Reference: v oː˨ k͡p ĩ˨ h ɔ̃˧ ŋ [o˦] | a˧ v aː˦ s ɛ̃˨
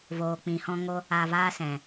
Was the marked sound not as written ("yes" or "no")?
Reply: no